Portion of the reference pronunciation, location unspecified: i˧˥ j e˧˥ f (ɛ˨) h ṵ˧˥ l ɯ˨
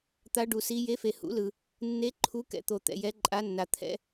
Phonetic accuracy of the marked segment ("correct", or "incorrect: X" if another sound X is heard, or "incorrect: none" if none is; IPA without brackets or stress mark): incorrect: e˨